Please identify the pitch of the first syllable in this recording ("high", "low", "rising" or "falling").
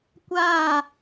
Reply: falling